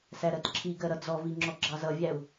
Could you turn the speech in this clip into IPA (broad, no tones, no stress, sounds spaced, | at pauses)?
s æ ɾ ɜ t ǁʰ i ɡ ɜ ɾ ʌ d͡z ɔ v i ŋ͡ǁ ɔ ɡ͡ǁ ɑ z ʌ vʲ æ u̯